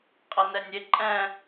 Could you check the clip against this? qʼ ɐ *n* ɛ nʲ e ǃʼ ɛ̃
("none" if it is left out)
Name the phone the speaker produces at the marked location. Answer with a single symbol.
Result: n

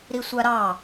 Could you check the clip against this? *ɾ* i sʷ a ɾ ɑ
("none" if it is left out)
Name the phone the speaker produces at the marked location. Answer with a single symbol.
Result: ɾ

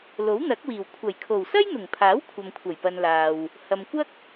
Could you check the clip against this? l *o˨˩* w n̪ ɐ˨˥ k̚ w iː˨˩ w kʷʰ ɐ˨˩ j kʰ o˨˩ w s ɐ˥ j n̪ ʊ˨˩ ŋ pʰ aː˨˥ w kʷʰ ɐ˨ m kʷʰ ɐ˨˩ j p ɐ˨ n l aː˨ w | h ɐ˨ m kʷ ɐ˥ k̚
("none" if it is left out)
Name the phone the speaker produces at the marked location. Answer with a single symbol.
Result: o˨˥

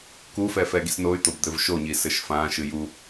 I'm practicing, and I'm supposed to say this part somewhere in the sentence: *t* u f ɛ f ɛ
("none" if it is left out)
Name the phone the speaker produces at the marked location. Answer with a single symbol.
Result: k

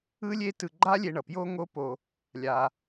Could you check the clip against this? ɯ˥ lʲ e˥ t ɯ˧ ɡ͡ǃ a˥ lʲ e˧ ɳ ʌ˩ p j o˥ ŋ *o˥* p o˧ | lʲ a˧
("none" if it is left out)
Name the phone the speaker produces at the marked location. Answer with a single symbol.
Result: o˥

